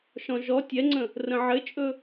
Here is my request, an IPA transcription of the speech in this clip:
ʃɔ̃ʒɔ tʲɛŋ͡ǀə̃ | rə̃ʕɘt͡ʃʼɵ

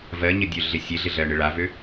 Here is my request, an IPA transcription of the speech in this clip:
vɜɲədʲøɮɪ sʲeɮɪɮɜɳɪ ɭavø

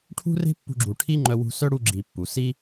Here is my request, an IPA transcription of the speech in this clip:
ʈʰṳ˦re̤˦pːṳ˧ɡ͡ǁu˨ ʈʰi˦ŋ͡ǃœ˧wṳ˧sœ˦ ɽu˦ɡ͡ǁi˧pːu˨ si˦

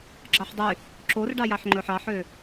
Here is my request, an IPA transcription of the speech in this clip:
ɡ͡ǁɑħdˤy | ǁorɖɑjɑħ ŋ͡ǃɵħɑħø

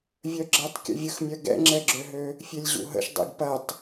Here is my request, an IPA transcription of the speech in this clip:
vʲœɡ͡ǁɐtˤ kʲə̰vʲəxmʲœ ɡɛ̰ŋ͡ǁɛɡ͡ǁøɦø | fʲelʲʑṵɦə̰ʃ dˤḛɡpɐtˤ

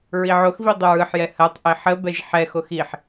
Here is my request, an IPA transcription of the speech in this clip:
ɹiʕoxvi dˤʏɹɯħjɛ hɜtˤʔe ħə bɛʒħɛxox iħ

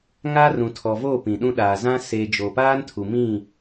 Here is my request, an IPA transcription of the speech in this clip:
ŋa˦rũ˨ tʰɔ˨voː˦˨ pĩ˨ɗũ˦ ɗaː˨zã˦ seː˨ d͡ʒo˨paː˦ntʰu˨ mĩ˦˨

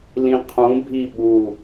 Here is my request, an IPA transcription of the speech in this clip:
lĩqʰũbʱi ɓu

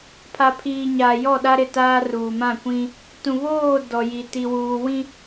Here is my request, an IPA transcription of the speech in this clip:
pʰa˨pʰiː˨ɲaː˨ jɔ˦˨ɗa˦ɾɪ˦˨taː˦ ruː˨mã˦˨kʷĩ˦ | tũ˨βoː˦˨ dɔ˨ji˨ ti˨wuː˨wĩ˦

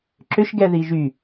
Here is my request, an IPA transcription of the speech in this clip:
ǁʏʃɡɛ ðiʒy

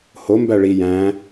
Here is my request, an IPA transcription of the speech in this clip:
ho mbæɭi jæ̃

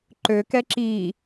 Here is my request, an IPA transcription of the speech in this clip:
ǃøkɛ ǁi

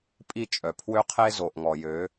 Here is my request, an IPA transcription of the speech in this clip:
pʼi˦˨t͡ʃʼœ˨ pʰwø˦qʰe˦ zo˨ʔŋɔ˨jø˨˦

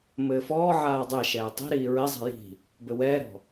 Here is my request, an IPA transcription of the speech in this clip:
mɘːfɔːʕaː dˤɛ ʃɛːtˤi̤ɾiː ɹɪzˤi̤ ji̤ | bɘwɛːɾɔ̤

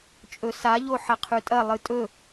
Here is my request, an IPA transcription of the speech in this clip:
t͡ʃʼɵsaʎo ħɐqʰʉtʼɐ lˠɨtʼɵ

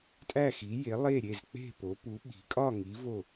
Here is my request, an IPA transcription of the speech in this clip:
tʼæ˥˩xi˩˥je˩˥ lˠe˥˩ɾʲe˥˩z k͡pe̤˥˩po˩˥pu˩˥ ɓi̤˩˥ kʼɒ˥˩ŋi˩˥ vo˥˩

